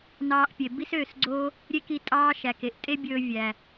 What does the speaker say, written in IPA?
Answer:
nɑː˧ʔpʲe˨ bi˦søː˦˨sɡ͡ǀoː˦ | ɾʲe˦ki˧ tʼɑː˦ʃæ˨ke˨ʔ tʼe˦bʲɵː˧ vʲæ˨

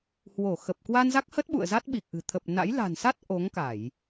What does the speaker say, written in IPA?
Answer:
hwo˧˩ xə˨˩p̚ kwa˧nza˦˥k̚hə˦˥t̚ ɓṵ˧˨ə̯za˦˥t̚ɓi˨˩k̚ʔɨ̤˨˩ t̪ʰə˨˩p̚na̰˧˥j la̤˨˩nsa˦˥t̚ ʔo˨˦ŋka˧˩˨j

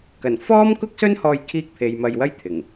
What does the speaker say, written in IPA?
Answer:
kɐ˨˩nfɔː˥mkʊ˥k̚sɵ˥n hɔː˧jkʰiː˧k̚pʰe˨j mɐ˧jwɐ˥j t̪ʰɪ˨˩ŋ

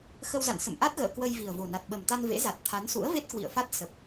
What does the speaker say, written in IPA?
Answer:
xə˧wza̰˧˨n sə̰˧˨mʔa˦˥t̚ɣə̰ː˧˨ kwə˧j vi˨˩ə̯vo˨˩na˨˩t̚ ɓə˨˩mt̪a˧n vḛ˧˥za˨˩t̚ t̪ʰa˨˦nsṵ˧˥ə̯ve˦˥t̚ kwḭ˧˨ə̯fa˦˥t̚ sə˨˩p̚

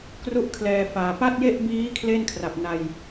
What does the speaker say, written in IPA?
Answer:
kru˥˩ʔ kʰlɛː˧faː˨˩ pa˥˩t̚je˥˩ʔbiː˦˥ kʰle˥˩nkʰra˨˩p̚na˧j

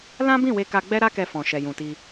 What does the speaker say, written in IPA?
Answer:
lã˦bĩ˦˨we˧ ka˧ɡ͡bɛ˦ɾa˦kɛ˧ fɔ̃˨ʃɛ˨jũ˨ti˧

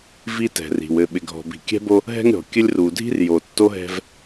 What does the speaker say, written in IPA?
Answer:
vi˦tɛ̤˨ri̤˨wɘ˦˨ ɓɪ˨ɡʱɔ̤˨ bi̤˨kʲɛ̤˦bo˦ | ɦɛ̤˦ŋɾʲɔ̤˨kʲɘ˦lʲ ru˨dʱi̤˦r jo˨tːo˦ɦɛ̤˦v

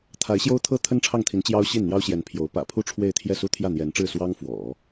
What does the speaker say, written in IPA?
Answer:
t̪ʰa˧˥ɪ̯ɕjo˥ʊ̯t̪ʰɤ˥ t̪ʰə˥nʈ͡ʂʰɑ˥˩ŋt̪ʰi˧˥n t͡ɕjɑ˥ʊ̯ ɕi˥˩nn̪jɑ˥ʊ̯ɕjɛ˧˥n pʰjo˧˥ʊ̯ pä̰˨˩pʰu˥ ʈ͡ʂʰwe˥˧ɪ̯t̪ʰjɛ˥˩ su˥t̪ʰjä˥˩n̪jɛ˧˥nʈ͡ʂɻ̩˥˩ swɑ˥ŋ fwɔ̰˨˩˦

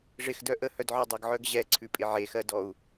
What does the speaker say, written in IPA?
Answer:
ʐɪxdœ ʔəhœdʕɔ dˤɪɡʕœɡ ʑɛǀʰʉpʼɪ ʕexɜdɔu̯

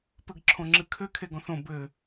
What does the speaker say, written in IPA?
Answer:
pɘɡǁʰõŋ͡ǁɨkʰɘ kʰeɡɔ̃θõ bɘ

